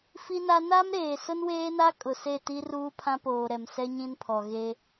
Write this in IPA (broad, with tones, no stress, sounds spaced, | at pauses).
f i˦ n a˦ n a˦ m ɾ eː˨ s ʊ˦ n w eː˦ n a˦ kʼ ʊ˨ s e˦˨ t i˦ r uː˦ pʰ ã˦ p oː˨ ɾ ɛ˨ m s ɛ˦ ɲ ĩ˦ n pʰ ɔ˨ ɣ e˦